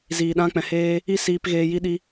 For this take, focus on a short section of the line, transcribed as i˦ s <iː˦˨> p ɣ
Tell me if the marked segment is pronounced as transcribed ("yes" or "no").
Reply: no